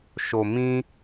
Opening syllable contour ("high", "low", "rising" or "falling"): low